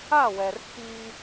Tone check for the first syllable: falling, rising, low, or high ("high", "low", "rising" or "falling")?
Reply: falling